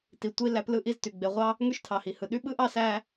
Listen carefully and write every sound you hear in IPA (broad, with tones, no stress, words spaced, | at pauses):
ti˩tʷi˦ læ˦plɯ˥ʔi˦z ty˩ɡ͡be˨ʁʷɑ˥ | ŋy˥ʃtʰɑ˩hi˩hɯ˩ ɗy˦ɓɯ˥ʔɑ˦ sæ˦